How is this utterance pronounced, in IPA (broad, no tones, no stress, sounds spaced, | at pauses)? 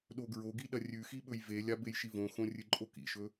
ɗ o ɡ ɹ o ɡ i ɗ ɐ rʲ ʉ x i ɓ ɵ j v e lʲ a b e j ʃ i v õ x õ rʲ ɨ ǃʼ o k ḭ ʃ ɵ